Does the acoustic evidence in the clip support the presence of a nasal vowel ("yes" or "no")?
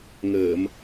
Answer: no